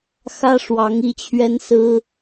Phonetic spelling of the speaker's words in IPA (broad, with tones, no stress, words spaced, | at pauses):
xä˦ ʂwɑ˨˦ŋ i˥˨t͡ɕʰɥɛ˦nsɹ̩˦